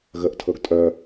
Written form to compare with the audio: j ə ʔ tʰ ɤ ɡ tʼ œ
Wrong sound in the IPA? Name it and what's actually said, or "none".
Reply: j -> ɣ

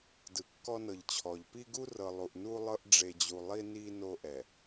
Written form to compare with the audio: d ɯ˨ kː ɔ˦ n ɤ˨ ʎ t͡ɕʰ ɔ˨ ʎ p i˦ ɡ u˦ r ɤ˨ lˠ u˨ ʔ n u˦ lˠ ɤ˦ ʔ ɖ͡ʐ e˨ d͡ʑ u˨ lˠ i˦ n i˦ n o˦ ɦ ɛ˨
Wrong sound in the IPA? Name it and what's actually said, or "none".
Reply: ɦ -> ʔ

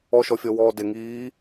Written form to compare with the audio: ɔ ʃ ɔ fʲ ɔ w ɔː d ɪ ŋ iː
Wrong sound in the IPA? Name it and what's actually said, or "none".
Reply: none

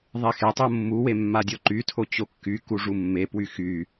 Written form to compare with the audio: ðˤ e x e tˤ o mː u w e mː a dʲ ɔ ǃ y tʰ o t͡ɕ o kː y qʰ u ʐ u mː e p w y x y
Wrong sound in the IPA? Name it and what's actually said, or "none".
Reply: qʰ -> k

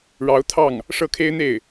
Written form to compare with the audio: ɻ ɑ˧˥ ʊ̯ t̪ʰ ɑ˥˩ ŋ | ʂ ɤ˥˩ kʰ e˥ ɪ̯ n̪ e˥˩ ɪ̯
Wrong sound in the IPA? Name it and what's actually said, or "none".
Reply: none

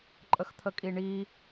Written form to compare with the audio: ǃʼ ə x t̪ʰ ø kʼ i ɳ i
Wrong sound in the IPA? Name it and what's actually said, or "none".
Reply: ø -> ə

